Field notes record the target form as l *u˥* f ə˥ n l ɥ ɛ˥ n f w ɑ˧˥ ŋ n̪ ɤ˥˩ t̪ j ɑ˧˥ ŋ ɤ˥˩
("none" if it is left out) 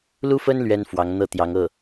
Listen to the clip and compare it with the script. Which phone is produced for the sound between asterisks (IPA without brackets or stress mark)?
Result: u˥